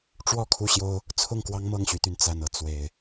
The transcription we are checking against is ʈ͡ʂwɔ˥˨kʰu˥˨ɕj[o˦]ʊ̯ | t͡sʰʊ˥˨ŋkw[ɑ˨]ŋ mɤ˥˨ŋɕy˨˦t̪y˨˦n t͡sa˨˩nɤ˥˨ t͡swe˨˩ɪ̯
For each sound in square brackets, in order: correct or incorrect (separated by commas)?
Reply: correct, incorrect